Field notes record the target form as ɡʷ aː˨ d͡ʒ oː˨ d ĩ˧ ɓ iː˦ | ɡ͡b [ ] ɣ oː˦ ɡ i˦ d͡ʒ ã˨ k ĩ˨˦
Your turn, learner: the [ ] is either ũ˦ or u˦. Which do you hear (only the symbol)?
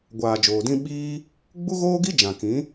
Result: u˦